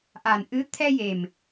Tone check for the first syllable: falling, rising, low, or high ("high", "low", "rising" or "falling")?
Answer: low